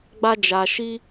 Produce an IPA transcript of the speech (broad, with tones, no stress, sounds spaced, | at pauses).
ɡ͡b a˦ d͡ʒ a˧ ʃ i˦